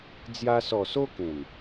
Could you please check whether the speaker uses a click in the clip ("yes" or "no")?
no